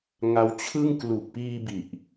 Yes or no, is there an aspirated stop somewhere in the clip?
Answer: yes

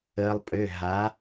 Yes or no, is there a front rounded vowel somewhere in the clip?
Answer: yes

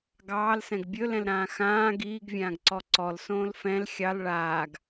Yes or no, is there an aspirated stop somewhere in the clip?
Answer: no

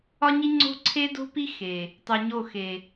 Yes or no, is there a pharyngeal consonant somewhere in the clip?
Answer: no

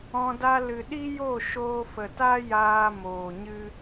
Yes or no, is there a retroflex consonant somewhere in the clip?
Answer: no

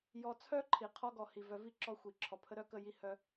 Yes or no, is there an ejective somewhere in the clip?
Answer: no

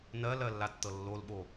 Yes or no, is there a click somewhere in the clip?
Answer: no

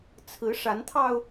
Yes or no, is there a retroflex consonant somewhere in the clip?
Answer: yes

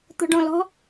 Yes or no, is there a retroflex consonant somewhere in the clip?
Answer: yes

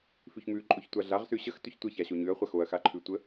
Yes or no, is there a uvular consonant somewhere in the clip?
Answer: yes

